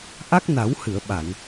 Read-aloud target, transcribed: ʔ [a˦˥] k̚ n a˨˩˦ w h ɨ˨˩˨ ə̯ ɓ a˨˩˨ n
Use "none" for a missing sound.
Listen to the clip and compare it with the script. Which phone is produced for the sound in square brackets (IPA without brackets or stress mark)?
a˦˥